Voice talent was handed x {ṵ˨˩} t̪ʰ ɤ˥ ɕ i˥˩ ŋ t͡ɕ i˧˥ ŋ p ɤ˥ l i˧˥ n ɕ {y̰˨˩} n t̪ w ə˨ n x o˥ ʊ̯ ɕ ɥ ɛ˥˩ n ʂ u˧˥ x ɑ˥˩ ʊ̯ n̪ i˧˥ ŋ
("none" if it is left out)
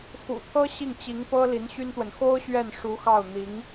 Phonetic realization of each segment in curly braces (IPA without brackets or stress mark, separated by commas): ṵ˨˩, y˥